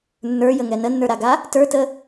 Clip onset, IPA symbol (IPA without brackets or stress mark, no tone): nː